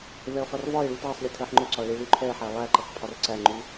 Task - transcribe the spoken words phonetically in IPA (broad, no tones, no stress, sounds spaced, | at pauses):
v ɛ o̯ χ ʌ r v ɒ e̯ ɭ u t ɜ sˤ lʲ ʌ tʰ ɜ ħ ŋ͡ǃ ʊ ǀ ɒ ɭ i ɭ u ǃʰ ɛ ħ æ lˠ æ ǃ ə χ pʰ ɒ r ǀ æ ŋ͡ǃ u